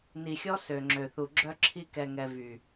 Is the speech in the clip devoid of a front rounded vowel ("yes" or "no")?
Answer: no